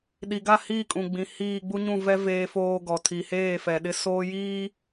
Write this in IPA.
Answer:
ɗi˨ɡa˦˨hiː˦˨kʼũ˨ ɡ͡bĩ˨hiː˦˨ ɡ͡bu˦ɲũ˦˨vɛ˦ veː˦foː˦ ɡɔ˨ tʰi˨heː˦˨fɛ˨ ɗɪ˦soː˦ jiː˦

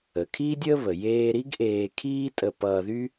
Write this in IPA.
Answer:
ə˩kʰiː˥dʲəː˥βə˩ jeː˧ɾi˥ɡ ʔeː˧kʰiː˥ tʼə˧pʌː˧ðy˥

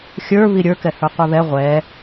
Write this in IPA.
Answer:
xʲə˞ βiɾʲə˞kɛ hə˞qʷɛβɛ ʁʷɛ

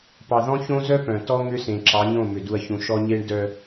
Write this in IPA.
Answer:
pɑ˨ðɔ̃˦çõ˦zœ˦ pœ̃˨ tɔ˦ŋʏ˦sẽ˨ ǁɑ˨˦ɲõ˦˨mʏ˨ du˨ɐ̯çũ˨ ʃɔ˦ɲe˦ɳ dœ˨

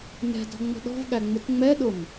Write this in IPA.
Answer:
nɛ̤ dɔ̤ŋ͡mə̤ɗɔ̤vɠæ ŋ͡mʊtŋ͡mɛɗʊm

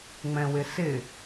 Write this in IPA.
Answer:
ŋ͡mɛ̃wɪsɪ

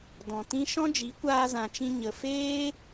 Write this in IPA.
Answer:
dɔ̃˨tĩ˦ ʃɔ̃˦ d͡ʒi˨˦kʷaː˧zã˨t͡ʃĩ˧ ɲə˨feː˦

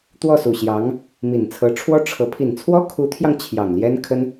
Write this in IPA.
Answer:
t̪wɔ˥˩su˨˩ɕjɑ˧˥ŋ | mi˨˩nt͡sʰɤ˧˥ʈ͡ʂʰwɔ˥ ʈ͡ʂʰɤ˧˥ pʰi˨˩nt͡sʰwɔ˥kʰu˧˥t̪ʰjɑ˧ŋ t͡ɕʰjɑ˨˩ŋljɛ˥nkʰə˥n

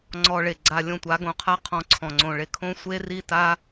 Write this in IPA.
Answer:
ŋ͡ǀɔ˧ɭe˨ɡ͡ǀa˧ lʲõ˧tʷa˨˦ɡõ˨˦qʰa˦ qʰɔ̃˧ǀʰɔ̃˨ŋ͡ǀõ˨ɭe˦ kʰõ˦sʷe˦ ri˦˨ta˦

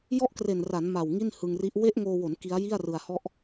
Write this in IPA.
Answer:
jɔ˥˩ʔkre˨˩nra˩˦n ma˨˩w ŋi˥˩nhɯ˧ŋri˦˥ʔ we˦˥ʔŋoː˧wo˩˦n ki˦˥a̯ji˥˩a̯ rɯ˧a̯hɔ˥˩ʔ

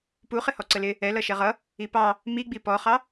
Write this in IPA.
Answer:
puχɪ hɔǀəlɪ | ɛ lʌʃɛʁʌ | ipɑ | miɡ͡bi pɔχɑ

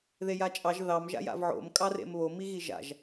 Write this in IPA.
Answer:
ðejat͡ʃʼɑʒ ðɑm ʒa̰ja̰vʕo̰m kʼɑrḛmβo miɣiʒa̰ʒ

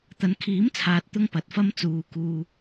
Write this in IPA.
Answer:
t̪ɐ˨˧nkʰiː˨˥mt͡sʰaː˨t̚ t̪ʊ˥ŋpɐ˨˥t̚fɐ˥m t͡suː˨ kuː˨

